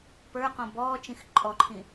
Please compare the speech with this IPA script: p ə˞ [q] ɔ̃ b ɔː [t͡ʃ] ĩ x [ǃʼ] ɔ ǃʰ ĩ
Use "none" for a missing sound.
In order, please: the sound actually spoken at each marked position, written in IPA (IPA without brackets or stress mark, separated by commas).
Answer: q, t͡ʃ, ǃʼ